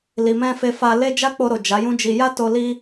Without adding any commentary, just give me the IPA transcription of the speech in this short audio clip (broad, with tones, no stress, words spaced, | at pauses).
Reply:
li˨mɛ̃˧ fe˧fa˧le˦ d͡ʒa˦k͡po˧ɾo˨ d͡ʒa˨˦jũ˦d͡ʒi˧ ja˦ to˧ li˦